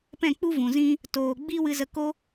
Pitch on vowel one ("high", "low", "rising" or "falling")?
falling